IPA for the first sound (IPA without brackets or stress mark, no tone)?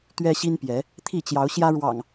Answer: t̪